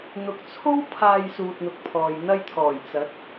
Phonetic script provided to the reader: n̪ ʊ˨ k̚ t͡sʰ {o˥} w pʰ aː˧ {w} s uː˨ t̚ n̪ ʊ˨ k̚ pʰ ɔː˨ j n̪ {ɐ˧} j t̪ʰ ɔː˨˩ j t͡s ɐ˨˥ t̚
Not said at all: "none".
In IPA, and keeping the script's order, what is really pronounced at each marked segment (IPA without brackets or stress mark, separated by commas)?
o˥, j, ɐ˧